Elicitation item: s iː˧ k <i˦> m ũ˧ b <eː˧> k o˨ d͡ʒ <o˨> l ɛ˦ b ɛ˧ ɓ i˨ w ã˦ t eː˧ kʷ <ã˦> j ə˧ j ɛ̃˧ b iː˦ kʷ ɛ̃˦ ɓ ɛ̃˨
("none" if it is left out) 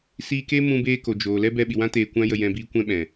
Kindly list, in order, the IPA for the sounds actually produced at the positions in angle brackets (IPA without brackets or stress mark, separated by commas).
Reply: e˦, eː˧, oː˨, ã˦